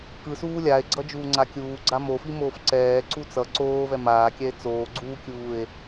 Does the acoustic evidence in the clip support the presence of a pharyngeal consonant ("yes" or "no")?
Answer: no